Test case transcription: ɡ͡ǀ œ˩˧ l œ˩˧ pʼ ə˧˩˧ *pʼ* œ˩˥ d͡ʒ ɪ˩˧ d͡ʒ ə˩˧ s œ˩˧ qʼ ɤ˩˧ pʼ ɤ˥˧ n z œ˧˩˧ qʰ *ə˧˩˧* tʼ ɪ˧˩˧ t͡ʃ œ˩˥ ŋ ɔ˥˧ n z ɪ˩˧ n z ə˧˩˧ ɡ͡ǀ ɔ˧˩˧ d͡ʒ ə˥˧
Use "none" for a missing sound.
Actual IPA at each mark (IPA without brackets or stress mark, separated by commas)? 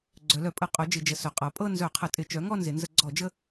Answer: qʼ, ə˧˩˧